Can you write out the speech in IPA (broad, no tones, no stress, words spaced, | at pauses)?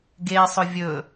ɡesˤʊ vʲɵ